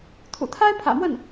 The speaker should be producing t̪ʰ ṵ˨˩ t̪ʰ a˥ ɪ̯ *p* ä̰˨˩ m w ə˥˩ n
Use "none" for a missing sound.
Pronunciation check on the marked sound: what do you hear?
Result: pʰ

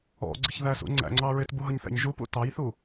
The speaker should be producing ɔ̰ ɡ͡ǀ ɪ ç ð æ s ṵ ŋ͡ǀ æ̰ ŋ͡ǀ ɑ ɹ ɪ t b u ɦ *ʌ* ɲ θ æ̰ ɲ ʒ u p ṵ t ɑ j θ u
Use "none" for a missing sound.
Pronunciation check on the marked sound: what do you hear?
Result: ʌ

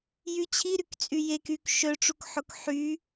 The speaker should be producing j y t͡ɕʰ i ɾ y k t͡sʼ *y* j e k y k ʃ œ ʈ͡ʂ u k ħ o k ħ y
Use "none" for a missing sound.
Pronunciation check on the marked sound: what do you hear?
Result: y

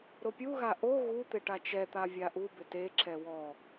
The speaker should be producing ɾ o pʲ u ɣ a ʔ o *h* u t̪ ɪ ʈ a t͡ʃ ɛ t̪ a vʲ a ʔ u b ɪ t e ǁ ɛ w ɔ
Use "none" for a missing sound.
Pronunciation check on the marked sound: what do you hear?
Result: ɣ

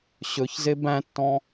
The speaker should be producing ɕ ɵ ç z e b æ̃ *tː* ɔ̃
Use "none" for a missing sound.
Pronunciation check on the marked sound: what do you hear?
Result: tː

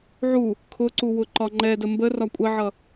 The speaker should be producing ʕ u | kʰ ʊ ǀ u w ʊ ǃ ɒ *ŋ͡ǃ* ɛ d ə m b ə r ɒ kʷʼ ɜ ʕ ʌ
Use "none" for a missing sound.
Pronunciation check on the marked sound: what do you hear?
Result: ŋ͡ǃ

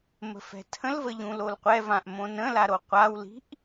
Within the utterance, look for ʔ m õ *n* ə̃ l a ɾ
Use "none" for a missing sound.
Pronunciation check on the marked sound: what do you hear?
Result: n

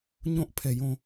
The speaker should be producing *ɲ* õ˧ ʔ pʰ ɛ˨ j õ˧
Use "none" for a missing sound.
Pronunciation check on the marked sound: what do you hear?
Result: ɲ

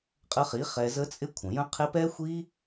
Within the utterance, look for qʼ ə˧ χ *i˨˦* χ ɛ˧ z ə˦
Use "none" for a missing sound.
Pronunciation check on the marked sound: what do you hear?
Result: i˨˦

